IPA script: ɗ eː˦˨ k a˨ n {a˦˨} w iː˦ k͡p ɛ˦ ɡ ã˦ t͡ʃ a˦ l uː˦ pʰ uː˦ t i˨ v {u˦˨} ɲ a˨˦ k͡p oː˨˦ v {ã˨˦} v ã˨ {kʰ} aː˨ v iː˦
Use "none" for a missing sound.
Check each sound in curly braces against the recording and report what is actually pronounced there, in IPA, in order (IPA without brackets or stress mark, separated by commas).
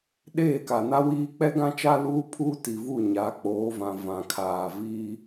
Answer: a˦, u˦˨, ã˨, kʰ